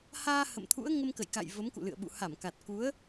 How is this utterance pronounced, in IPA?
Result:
haː˧ hə̰˧˨mt̪ʰṵ˧˥ə̯ ŋə˧mkə̰˧˨jka̰˧˨j və˨˦mkṵ˧˨lɨ̰˧˨ə̯ɓṵ˧˨ ha˧˩mka˨˩t̚ku˨˦ə̯

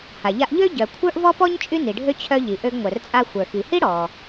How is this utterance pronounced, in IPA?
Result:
ha˩ʎa˧ʔʎø˥ ɟœ˩ kʷʰə˞˥ʔvɔ˥pɔ˥ɲ t͡ʃʼy˥ni˩ɖʱø˥ t͡ɕʰœ˧ʎi˩ ʔø˧ɡŋʷœ˩rt͡sʼa˧ xʷə˞˩xi˩hi˥ ɽɔ˩

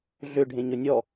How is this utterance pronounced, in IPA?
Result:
ɮʏ ɖʱẽɲɵnʲɔ

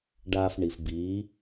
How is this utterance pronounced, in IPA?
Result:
ɖaː˧f ɳi˨fbiː˨˦

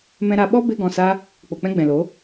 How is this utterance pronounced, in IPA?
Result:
mɛ̃˧ɾa˧ ɓɔ˦be˧ ɡɔ̃˨sa˧ | k͡po˨k͡pɛ̃˦ɡ͡bɛ̃˨lo˨˦

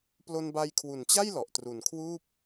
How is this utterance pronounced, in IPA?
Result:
plo˧nba˧jkʰwu˨˩nt͡ɕa˥˩j lɔ˨˩ʔ tru˨˩nkʰwuː˥˩p̚

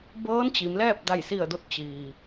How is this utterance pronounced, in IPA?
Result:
bɤː˧˥n t͡ɕi˩˧mlɛː˥˨p̚ da˧˩jsi˧˩ə̯do˧t̚ t͡ɕiː˩

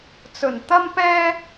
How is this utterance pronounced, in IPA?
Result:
t͡sɵ˨˩nt̪ɐ˥mpɛː˥

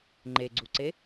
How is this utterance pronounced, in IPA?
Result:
ŋ͡ǃeɡ͡ǀuǀe

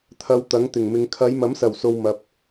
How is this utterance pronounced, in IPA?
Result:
t̪ʰɐ˧wt̪ɐ˨˥ŋ t̪ɪ˨˩ŋmɪ˨˧ŋ kʰɐ˨˧jmɐ˨˥msɐ˨˩wso˨w mɐ˧p̚

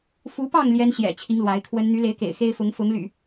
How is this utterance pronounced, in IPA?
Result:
fu˨˦pɑ˥˨ŋ ljɛ˦n ɕjɛ̰˨˩t͡ɕʰi˨˦ŋ lwa˨˦ɪ̯kʰwə˦n n̪y˨˦le˨˦ɪ̯ kḛ˨˩ɪ̯xe˦ɪ̯fʊ˨˦ŋ fʊ˨˦ŋ ly̰˨˩

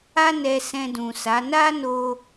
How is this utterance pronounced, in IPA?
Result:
a˦nɛ˧ sɛ̃˧dũ˨sa˨˦ na˦no˧

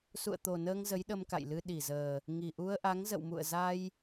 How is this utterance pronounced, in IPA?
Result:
sṵ˧˨ə̯t̪o˨˩nəː˧ŋ zə˨˦jɗə˧mka̰˧˨jlɨ˧ ɗi˧˩zəː˨˩ | ŋi˨˩ʔu˧ə̯ʔa˨˦ŋ zə̰˧˨wmṵ˧˨ə̯ za˧j

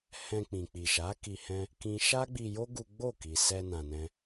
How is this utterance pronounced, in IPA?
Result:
hɛ̃˧ k͡pĩ˨ k͡pi˨ʃa˨˦ ki˧ hɛ̃˦ | kĩ˦ ʃa˦ɡ͡bi˧jo˦ ɡu˦ ɡ͡bo˦˨ki˨sɛ˧ nã˧nɛ̃˦

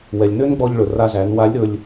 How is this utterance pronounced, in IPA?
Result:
wɛ˩lʲ nø˥nɡ͡bɔ˧ʎɭɵ˩ ra˧zæ˩˧nwa˧˥lʲɾɵ˧lʲ

